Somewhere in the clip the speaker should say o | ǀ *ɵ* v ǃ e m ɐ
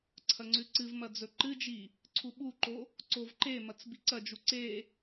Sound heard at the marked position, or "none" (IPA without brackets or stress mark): o